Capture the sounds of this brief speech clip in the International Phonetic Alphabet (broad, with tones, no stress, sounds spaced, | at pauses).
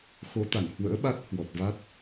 x o˨˦ t̪ a˧˩ n h w ə̰ː˧˥ ɓ a˦˥ t̚ h w ɔ˨˩ t̚ v a˦˥ t̚